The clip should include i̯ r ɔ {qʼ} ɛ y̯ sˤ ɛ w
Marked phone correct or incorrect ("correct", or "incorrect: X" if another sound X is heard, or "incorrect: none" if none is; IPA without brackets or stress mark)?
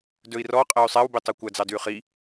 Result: correct